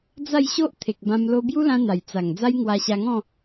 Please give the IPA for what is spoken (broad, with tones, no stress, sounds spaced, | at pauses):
d͡z a˥˧ j ɕ o˦ ʔ t̪ʰ e˨ k̚ b ã˧ m l o˧ b j u˦ l ã˧ n̪ a˨˩ j t͡s a˨˩ ŋ d͡z a˦ j ŋ w a˧ ɕ a˧ ŋ ɔ̃˥˧